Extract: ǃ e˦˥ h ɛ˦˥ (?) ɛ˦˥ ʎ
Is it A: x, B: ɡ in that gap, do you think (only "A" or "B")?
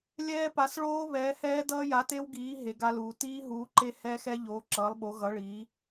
A